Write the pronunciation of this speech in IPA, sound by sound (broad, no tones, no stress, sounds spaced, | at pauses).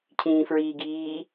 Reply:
cʰ ĩː f ɹ iː ɡ iː